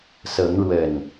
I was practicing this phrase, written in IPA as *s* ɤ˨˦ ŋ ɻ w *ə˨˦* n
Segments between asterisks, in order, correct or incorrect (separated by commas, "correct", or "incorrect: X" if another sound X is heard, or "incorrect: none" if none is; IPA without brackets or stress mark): correct, incorrect: ə˨˩